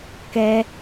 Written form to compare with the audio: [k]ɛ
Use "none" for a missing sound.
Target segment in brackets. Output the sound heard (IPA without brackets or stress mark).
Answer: k